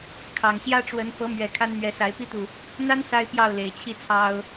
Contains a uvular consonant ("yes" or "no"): no